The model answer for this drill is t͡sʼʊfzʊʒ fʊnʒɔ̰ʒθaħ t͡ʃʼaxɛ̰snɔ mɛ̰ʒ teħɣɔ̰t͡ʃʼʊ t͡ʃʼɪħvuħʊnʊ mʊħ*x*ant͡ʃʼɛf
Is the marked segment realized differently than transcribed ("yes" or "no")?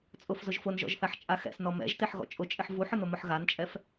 yes